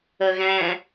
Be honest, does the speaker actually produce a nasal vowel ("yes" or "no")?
yes